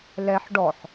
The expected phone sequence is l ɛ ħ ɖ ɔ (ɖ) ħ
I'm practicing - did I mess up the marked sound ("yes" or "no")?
yes